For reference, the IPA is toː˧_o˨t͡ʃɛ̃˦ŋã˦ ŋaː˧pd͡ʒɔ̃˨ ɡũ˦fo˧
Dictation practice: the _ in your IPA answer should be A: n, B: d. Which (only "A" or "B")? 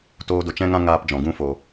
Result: B